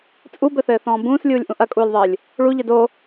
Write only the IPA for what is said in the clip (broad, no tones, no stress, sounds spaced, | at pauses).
t͡sʼ u b ɘ θ ɘː θ ɔ̃ː b ũː s lʲ uː lʲ ʔ ũ ʔ ɐ kʼ uː lʲ ðˤ ɘː lʲ | ɭ u ʎ ɘ d o